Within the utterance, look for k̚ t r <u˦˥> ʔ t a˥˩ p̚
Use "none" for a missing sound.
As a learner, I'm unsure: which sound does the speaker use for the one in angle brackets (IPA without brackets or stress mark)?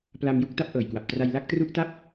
u˦˥